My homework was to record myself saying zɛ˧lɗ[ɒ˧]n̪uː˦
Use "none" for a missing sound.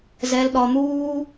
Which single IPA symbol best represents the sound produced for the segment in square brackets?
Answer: ɒ˧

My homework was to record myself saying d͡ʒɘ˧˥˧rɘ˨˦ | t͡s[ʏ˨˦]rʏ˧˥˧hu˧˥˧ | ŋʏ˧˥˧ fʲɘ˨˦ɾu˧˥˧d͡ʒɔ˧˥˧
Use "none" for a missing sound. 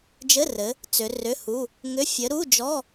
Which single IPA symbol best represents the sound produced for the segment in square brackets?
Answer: ʏ˨˦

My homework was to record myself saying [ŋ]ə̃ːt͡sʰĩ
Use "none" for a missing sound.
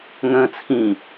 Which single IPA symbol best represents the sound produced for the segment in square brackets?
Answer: ŋ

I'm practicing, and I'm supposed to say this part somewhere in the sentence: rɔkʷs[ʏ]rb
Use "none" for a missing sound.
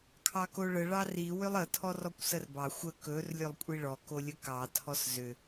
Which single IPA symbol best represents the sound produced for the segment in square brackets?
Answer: ə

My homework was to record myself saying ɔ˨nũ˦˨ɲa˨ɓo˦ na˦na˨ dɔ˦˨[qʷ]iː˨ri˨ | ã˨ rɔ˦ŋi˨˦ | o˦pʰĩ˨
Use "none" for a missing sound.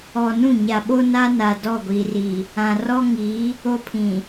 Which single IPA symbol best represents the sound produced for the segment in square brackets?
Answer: ɡʷ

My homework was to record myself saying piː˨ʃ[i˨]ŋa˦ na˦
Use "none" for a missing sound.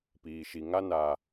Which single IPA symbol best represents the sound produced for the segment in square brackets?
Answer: i˨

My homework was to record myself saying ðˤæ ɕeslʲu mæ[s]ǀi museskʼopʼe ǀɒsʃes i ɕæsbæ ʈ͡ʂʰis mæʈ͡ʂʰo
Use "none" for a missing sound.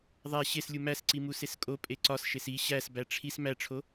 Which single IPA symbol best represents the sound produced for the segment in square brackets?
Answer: s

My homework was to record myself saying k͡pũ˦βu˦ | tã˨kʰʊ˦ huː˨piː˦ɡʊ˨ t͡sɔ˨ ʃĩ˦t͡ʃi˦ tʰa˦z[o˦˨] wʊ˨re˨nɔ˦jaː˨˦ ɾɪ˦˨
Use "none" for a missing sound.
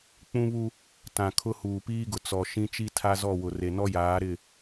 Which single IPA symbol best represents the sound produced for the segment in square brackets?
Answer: ɔ˦˨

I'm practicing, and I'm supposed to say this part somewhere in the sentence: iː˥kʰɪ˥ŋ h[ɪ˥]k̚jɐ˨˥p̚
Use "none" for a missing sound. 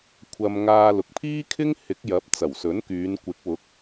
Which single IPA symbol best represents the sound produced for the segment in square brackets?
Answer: ɪ˨˥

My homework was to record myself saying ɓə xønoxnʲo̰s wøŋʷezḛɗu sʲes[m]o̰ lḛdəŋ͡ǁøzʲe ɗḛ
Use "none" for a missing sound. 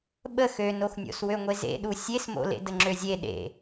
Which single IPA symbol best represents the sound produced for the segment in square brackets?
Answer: m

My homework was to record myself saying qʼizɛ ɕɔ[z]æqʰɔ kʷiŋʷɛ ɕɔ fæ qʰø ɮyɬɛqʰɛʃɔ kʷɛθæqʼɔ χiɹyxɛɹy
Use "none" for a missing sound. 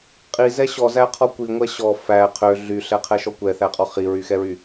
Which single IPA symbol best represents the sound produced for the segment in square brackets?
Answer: z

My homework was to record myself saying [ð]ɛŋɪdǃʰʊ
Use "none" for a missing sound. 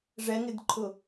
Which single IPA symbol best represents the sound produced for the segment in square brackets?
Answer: ʐ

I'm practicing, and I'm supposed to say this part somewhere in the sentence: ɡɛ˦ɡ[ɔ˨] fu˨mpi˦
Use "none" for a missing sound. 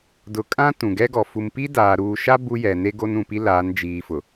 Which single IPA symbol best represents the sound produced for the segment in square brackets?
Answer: ɔ˨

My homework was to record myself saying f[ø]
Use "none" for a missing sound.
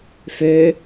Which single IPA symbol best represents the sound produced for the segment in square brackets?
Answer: ø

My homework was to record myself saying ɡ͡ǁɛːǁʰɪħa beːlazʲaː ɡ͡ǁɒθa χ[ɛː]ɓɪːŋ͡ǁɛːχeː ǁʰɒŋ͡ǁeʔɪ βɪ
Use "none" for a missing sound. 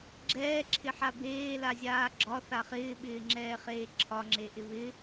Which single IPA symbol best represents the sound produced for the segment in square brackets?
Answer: ɪː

